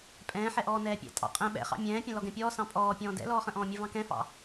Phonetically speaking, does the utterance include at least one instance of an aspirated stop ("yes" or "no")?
no